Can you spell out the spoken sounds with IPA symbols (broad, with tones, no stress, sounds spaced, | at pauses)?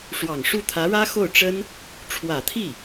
ʂ w ɑ˨˩ ŋ ʂ u˥˩ t̪ʰ ä˧˥ ɻ ä˥ x o˥˩ ʊ̯ ʈ͡ʂ ə˥ n | ʈ͡ʂʰ w ä˨˩ t̪ʰ i˥˩